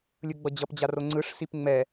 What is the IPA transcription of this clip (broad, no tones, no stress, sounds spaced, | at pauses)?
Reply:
lʲ ɯ ɡ͡b ʌ d͡ʑ ʌ p d͡ʑ a r o ŋ͡ǀ ɯ ʂ s i p ŋ͡m ɛ